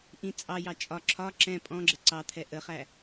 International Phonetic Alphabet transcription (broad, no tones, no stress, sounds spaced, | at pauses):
ʔ ĩ t͡sʼ ɑ j ɑ t͡ʃʼ ɒ ǁʰ ɒ ǁ ɛ̃ pʼ ɔ̃ ɡ͡ǁ ə ǀ ɑ t̪ʰ ɛ ʔ ə χ æ